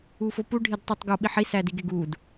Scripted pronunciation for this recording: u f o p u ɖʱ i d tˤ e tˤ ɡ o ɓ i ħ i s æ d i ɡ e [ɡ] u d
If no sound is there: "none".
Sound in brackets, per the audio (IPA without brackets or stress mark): ɡ